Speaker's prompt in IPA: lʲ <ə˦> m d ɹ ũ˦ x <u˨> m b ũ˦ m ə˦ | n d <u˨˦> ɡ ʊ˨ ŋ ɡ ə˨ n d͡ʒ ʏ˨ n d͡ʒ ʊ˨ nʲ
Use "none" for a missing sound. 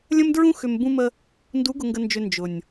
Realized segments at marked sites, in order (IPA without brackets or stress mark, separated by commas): ə̃˦, ʏ˨, u˨˦